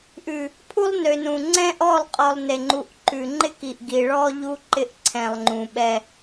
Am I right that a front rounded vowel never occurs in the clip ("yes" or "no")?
no